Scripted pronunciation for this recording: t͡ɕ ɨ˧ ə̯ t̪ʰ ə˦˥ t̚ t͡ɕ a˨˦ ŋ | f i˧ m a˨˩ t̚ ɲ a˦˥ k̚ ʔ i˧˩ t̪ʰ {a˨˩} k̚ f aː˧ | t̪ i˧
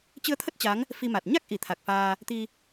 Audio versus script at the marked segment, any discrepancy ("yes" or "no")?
no